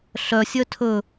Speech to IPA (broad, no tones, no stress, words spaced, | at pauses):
ɬœsʲœ tʰɵ